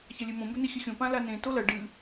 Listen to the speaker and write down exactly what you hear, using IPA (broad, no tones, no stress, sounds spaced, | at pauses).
ç ɐ lʲ e m õ m b ɵ n i xʲ ɨ xʲ õ p ã l a n ẽ t o l ɐ ɖ ɨ